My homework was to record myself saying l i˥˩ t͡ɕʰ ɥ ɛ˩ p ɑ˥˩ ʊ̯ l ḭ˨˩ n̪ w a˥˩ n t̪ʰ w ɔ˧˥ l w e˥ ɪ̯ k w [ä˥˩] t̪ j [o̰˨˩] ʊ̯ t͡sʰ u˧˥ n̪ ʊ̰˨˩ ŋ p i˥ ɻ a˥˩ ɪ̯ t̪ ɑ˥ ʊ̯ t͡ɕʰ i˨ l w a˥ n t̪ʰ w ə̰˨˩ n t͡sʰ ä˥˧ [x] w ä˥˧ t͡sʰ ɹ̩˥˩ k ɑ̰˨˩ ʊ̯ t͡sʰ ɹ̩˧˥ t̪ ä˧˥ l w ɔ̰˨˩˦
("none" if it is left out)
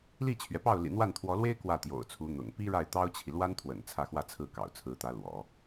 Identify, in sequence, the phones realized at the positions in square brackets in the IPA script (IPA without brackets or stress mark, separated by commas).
ä˥˩, o̰˨˩, x